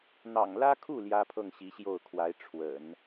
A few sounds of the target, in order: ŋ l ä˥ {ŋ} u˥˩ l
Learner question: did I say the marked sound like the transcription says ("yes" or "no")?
no